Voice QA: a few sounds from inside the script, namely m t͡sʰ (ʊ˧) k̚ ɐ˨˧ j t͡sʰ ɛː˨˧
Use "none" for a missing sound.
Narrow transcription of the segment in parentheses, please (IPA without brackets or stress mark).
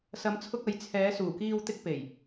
ʊ˧